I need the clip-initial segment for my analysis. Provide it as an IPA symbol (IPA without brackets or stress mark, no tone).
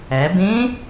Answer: æ